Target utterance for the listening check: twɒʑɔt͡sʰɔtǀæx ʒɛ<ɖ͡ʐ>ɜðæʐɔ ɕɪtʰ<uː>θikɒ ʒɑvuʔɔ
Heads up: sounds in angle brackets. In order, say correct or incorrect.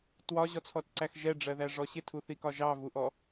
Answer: correct, incorrect

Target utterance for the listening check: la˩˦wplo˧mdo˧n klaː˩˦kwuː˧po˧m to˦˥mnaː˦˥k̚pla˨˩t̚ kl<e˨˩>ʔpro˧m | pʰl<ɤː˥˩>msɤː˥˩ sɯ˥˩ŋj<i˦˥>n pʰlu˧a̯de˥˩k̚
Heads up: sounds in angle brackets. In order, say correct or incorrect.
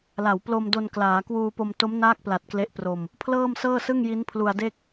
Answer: incorrect, correct, correct

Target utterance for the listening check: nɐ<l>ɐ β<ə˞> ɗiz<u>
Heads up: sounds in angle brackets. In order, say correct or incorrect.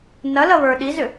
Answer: correct, correct, incorrect

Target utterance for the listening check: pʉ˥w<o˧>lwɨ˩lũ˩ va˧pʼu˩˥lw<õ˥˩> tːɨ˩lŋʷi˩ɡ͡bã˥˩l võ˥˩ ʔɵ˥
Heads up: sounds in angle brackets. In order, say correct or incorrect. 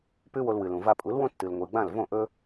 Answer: correct, incorrect

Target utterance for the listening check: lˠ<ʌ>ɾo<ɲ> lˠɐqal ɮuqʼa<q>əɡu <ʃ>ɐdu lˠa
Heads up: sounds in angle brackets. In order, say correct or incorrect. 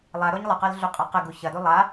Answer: incorrect, correct, correct, incorrect

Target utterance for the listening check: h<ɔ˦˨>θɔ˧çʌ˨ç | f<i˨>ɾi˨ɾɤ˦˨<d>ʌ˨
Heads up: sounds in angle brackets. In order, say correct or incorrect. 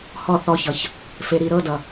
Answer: correct, incorrect, correct

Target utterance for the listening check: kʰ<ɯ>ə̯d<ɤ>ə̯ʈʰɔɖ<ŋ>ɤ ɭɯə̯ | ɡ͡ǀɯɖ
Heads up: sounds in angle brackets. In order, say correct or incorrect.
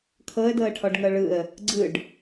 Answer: incorrect, correct, correct

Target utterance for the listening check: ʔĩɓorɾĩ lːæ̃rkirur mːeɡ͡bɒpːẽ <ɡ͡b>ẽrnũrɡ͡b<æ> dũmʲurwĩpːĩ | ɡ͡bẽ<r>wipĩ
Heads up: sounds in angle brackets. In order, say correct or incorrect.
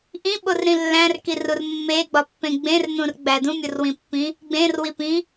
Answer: correct, correct, correct

